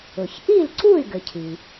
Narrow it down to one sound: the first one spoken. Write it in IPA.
ʊ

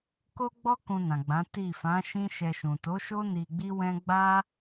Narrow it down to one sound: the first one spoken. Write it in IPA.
k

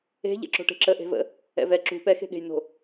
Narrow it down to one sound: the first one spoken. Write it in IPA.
e̤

